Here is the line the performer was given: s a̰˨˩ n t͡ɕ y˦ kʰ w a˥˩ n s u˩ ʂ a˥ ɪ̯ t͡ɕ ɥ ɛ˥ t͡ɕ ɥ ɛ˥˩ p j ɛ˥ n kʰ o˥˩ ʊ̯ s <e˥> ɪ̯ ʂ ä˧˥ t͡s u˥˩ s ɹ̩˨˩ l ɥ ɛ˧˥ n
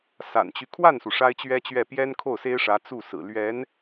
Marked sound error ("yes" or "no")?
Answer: no